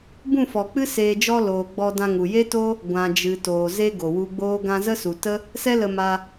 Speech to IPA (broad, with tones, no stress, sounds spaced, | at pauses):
b ũ˦˨ f ɔ˨ k͡p ɨ˦ s eː˧ d͡ʒ ɔ˧ l oː˨ ɡ͡b ɔ˧ d ã˧ ŋ u˨ j e˦ t o˦ | ɡʷ ã˨ d͡ʒ ɨ˨ t oː˨ z e˦ ɡ o˨ w u˧ ɡ͡b oː˦ ɡ ã˧ z ə˦ s u˨ t ə˦ | s ɛ˦ l ə˧ m a˧